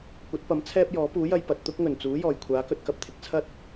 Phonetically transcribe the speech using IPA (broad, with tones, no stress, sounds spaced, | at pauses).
kʷ ɐ˨˥ t̚ p ɐ˨˥ m t͡sʰ ɛː˥ p̚ j ɔː˨˥ p uː˨˥ j ɐ˧ j p ɐ˨ t̚ t̪ ʊ˥ k̚ ŋ ɵ˨˩ n t͡s uː˨˥ j ɔː˨˩ j kʷʰ aː˨˥ k ɵ˨ t̚ k ɐ˧ p̚ t̪ʰ ɪ˨ k̚ t͡sʰ ɐ˥ t̚